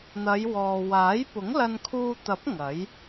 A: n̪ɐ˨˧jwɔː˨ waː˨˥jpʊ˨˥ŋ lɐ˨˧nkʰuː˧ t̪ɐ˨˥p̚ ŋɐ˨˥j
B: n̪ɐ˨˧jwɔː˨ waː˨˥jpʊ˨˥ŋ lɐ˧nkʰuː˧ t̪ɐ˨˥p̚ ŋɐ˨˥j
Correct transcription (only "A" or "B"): B